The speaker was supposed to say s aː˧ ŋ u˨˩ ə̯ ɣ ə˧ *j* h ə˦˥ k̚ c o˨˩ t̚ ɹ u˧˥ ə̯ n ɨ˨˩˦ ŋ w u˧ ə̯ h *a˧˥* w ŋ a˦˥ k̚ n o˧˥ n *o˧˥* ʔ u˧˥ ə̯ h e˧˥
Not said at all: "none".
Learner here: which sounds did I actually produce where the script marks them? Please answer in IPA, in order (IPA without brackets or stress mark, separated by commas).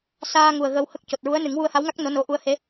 w, a˧˥, o˧˥